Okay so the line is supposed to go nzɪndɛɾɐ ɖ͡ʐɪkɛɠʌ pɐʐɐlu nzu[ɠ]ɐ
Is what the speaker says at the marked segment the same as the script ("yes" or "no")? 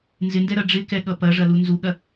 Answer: yes